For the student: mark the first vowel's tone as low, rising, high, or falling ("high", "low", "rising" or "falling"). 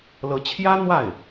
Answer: rising